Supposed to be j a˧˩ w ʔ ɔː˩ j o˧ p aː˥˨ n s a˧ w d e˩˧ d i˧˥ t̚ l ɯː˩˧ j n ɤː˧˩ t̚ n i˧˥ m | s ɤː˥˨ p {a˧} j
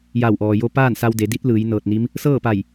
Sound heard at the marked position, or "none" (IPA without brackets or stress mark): a˧˩